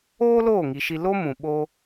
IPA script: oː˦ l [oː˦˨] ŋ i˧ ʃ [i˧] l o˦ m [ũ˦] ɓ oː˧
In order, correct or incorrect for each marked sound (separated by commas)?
correct, correct, incorrect